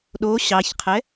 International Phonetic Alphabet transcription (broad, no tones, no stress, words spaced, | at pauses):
ɗo ɕɑçqʰɛ